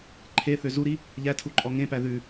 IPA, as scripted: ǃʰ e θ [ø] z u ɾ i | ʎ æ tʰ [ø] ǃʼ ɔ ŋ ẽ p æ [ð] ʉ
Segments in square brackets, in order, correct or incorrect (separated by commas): correct, incorrect, correct